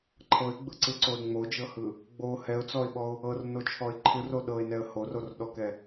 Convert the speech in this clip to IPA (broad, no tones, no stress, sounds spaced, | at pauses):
ǃʰ ɤ ɪ̯ ɡ͡b ɯ ǀ ɯ ǀ o ɪ̯ ŋ͡m o d͡ʒ ɤ h ɯ | ɡ͡b o h ɛ ʊ̯ t͡s ɔ ɪ̯ ɓ ɔ ʊ̯ | ɤ r n o t͡ʃʰ ɔ ɪ̯ ǃʰ ɯ r o ɗ ɤ ɪ̯ n ɛ ə̯ h o r o r ɗ ɔ k ɛ